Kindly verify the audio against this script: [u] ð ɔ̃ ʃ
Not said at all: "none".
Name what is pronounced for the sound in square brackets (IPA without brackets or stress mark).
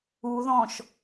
u